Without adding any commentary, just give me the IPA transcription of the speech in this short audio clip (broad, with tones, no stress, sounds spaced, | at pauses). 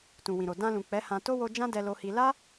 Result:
t ũ˨ w ĩ˨ ɾ o˨ d ã˧ l ũ˨ k͡p ɛ˨˦ h ã˧ t o˦ w o˧ d͡ʒ ã˦ d ɛ˧ l o˧ h i˧ l a˦